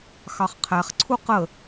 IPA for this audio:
x ɑ χ qʰ æ χ ǀʰ u q ə

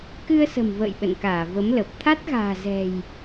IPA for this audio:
k ɨ˧ ə̯ s ə̤˨˩ m v ə̰ː˧˨ j ɓ ə̰˧˨ n k aː˧˩ v ə˨˦ m l ə˨˩ p̚ t̪ʰ a˦˥ t̚ ɣ a̤ː˨˩ z ɛ̤˨˩ j

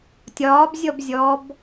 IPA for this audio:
tʲ ɒː b zʲ ɔ b zʲ ɔ b

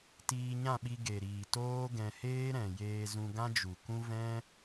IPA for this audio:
t iː˧ ɲ ã˦˨ ɓ i˧ ɡ e˨ ɾ iː˨ t oː˦ ɡ ɛ̃˧ h eː˦ ɾ ɛ̃˨ j eː˧ z ũ˧ ɡ ã˦ d͡ʒ u˨ k ũ˦ v ɛ̃˦

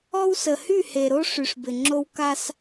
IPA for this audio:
ɔ˦ w s ə˨ h y˦˨ h e˨ ɾ o˦ ʂ y˨ ʂ b ɪ˨ ŋ͡ǁ o˦ w k a˦ s

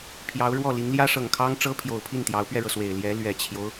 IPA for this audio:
pʰ j ɑ˧˥ ʊ̯ ɻ w ɔ˥˩ l i˧˥ ŋ l j ä˥ ʂ ɤ˨˩ ŋ kʰ ɑ˥ ŋ ʈ͡ʂ ɤ˥ pʰ j o˨˩ ʊ̯ pʰ i˥˩ n t̪ j ɑ˧˥ ʊ̯ p ɥ ɛ˧ ɻ ɤ˩ s w e˨˩ ɪ̯ l j ɛ˧˥ l ɥ ɛ˨˩ t͡ɕʰ j o˦ ʊ̯

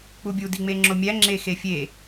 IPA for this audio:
k͡p u bʲ u d i ŋ͡m e ŋ͡ǁ o mʲ æ ŋ͡ǁ e x e fʲ e

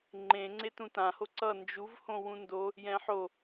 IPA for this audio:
ŋ͡ǃ ẽ ŋ͡ǀ e t ũ t ã h o ǀ ʌ n d͡ʒ u v h õ w ũ n d o | j ɛ̃ ħ o

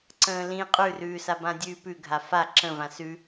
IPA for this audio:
ǀ ə̃ː l ĩ qʼ ʉ r ʉː s a b ã dʲ ʉː p ʉ ɡʱ a f a ǁ ə̃ v ã s ʉ

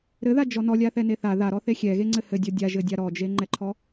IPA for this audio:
ɾ ɘ ð a d͡ʒ ɔ n ɔ lʲ a θ ɛ n e θ a ð a ɾ ɔ θ e xʲ ɛ ɣ e ŋ͡ǀ ɘ h ɘ dʲ ɔ dʲ a ʒ ɘ dʲ a ɾ ɔ d͡ʒ e ŋ͡ǃ ɛ ǃʰ ɔ

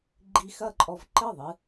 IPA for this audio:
ɡ͡ǃ i˧ x ɐ˥˩ ǃʼ ɔ˧ v ǃ ɘ˥˩ ðˤ ɨ˧

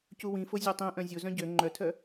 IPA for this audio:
c u w ĩ f o zʲ ø tˤ ĩ ʔ œ̃ zʲ o z œ̃ ɟ ø ŋ͡ǃ œ tʰ œ

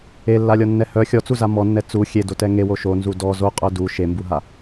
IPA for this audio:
e lː a lʲ ɔ nː ɛ h œ xʲ ɔ t͡s u z a m ɔ nː ɛ t͡s u xʲ e d o t ɛ ŋ e w o ʃ o n z u d ɔ z o qʼ œ d u ʃ e m b u ɦ a

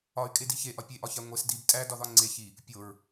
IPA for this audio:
ɒ y̯ kʼ e d i ç e ʔ ɒ pʲ e ʔ ɒ ç æ ŋʷ e s d i b tʼ æ d ɒ ð ɒ ŋ͡ǀ e ç i | pʲ o ɹ

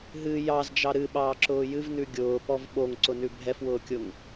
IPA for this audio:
ɦ ɨ j ɑ z d͡ʒ ɑ ɾ ɨ ɓ ɑː ǁ ʊː j ɨ v n ʉ ɡʲ ʊː p ɔ v ɓ o ŋ ǀ ʊ n ʉ bʱ ɛ f w ʊː kʲ ʊ ŋ

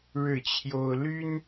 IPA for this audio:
ɻ ɻ̩˥˨ t͡ɕʰ j o˦ ʊ̯ l y˦ n

